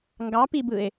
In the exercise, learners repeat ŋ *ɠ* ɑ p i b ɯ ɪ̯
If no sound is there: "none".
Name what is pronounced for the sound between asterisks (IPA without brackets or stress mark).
ɡ